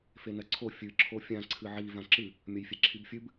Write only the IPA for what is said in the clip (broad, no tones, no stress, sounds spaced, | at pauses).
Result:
f e n ɐ ǀʰ o fʲ ɨ ǁʰ o fʲ ã ǀʰ ɨ ʕ i v ã ǁ ɨ | mʲ ɐ j fʲ e ǁʰ i b fʲ ɨ b